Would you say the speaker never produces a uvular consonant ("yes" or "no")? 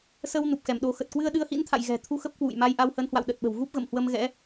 yes